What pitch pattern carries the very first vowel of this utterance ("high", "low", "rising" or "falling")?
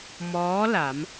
rising